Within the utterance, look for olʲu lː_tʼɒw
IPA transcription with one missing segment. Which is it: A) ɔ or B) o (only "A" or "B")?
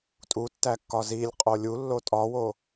B